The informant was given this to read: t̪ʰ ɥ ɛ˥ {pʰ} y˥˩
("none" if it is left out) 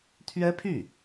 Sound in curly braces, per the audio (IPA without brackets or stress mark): pʰ